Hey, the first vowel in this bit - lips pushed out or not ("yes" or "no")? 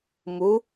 yes